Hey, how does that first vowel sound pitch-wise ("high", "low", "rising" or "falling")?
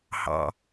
low